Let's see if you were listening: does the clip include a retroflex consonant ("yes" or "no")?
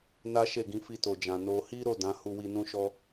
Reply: no